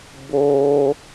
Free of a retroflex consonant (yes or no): yes